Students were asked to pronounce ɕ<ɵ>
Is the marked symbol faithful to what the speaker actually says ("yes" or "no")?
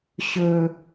yes